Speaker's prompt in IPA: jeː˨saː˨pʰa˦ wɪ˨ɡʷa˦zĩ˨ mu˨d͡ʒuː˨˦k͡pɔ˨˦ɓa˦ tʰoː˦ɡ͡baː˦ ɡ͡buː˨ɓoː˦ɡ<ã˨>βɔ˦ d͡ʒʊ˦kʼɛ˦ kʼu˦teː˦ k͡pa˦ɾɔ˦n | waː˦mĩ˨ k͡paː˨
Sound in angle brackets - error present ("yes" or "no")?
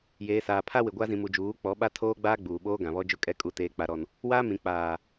no